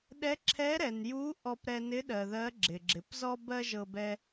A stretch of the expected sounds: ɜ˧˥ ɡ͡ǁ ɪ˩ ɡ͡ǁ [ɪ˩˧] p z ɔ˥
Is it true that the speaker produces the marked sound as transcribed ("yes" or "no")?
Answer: yes